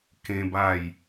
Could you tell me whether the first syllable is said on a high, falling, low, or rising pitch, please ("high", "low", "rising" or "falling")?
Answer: high